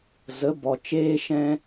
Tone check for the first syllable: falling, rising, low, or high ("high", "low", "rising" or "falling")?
rising